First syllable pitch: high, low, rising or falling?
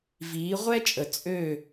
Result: rising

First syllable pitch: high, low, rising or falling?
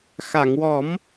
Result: low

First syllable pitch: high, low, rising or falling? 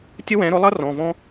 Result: high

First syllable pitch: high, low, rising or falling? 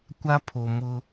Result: high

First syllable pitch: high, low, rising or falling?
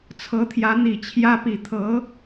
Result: rising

